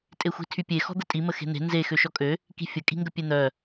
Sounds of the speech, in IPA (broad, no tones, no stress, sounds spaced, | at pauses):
tʼ e xʷ i̤ tʰ y pʲ e x ɔ̤ d̪ ə tʼ i m ə x e̤ n̪ e̤ n z e x ø ʃ ɔ kʼ ø | k i̤ fʲ ə kʼ i̤ ŋ ɡ ə pʲ e n̪ œ